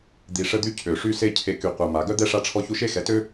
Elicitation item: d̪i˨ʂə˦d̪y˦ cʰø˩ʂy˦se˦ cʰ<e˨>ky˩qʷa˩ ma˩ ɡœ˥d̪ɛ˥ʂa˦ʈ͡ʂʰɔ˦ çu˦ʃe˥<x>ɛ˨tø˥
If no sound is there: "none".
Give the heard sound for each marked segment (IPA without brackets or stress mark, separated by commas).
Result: e˨, x